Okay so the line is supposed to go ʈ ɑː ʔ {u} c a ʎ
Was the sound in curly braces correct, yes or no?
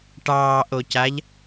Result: no